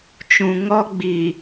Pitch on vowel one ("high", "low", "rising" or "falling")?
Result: low